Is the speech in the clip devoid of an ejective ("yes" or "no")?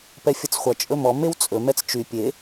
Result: no